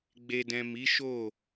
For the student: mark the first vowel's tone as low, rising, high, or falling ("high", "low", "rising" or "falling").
low